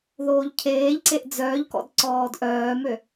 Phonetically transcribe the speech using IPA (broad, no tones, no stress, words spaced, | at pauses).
ðoːʎcʰeːʎǀeʔ d͡zœːʎkɔ̰d ǀɔːdʔœːmø